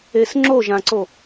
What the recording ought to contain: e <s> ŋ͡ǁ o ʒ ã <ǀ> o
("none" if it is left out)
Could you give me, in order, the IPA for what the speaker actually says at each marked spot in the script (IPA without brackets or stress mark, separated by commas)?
s, ǀ